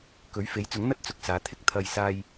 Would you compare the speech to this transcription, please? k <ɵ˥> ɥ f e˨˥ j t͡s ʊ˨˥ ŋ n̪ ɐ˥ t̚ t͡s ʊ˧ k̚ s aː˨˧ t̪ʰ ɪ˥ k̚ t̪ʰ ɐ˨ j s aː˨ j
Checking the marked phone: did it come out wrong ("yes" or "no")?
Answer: yes